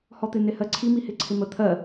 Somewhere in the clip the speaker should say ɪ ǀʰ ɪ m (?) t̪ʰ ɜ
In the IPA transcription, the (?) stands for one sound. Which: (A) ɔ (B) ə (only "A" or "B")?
B